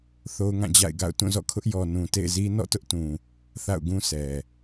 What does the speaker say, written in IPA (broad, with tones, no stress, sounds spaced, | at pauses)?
θ o˦ ʊ̯ ŋ ã˦˨ d͡ʑ a̰˦˨ ɪ̯ ɡ a̰˦˨ ʊ̯ t ũ˦˨ z ɔ̰˦˨ kʰ ʊ˦ ʔ j ɔ˨ n ũ˨ t ḛ˦˨ ɪ̯ z i˦ n ɔ̰˦˨ t ʊ˦ ʔ t ũ˨ | θ a̰˦˨ ʊ̯ ɡ ũ˦ sʰ ɛ˨